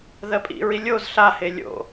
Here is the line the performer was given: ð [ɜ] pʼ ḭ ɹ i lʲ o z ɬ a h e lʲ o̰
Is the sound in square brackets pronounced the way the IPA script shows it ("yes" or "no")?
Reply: yes